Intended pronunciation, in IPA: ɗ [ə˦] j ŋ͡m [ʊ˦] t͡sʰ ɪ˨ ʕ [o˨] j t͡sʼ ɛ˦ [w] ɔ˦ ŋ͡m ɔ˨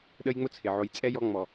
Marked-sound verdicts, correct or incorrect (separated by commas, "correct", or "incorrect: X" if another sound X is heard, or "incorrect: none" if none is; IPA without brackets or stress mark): correct, correct, correct, incorrect: j